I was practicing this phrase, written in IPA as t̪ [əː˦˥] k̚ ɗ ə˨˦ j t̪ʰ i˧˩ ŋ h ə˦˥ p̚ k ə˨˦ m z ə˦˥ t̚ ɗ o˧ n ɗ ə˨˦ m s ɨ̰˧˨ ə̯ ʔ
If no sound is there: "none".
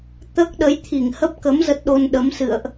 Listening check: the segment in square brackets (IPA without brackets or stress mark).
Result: əː˦˥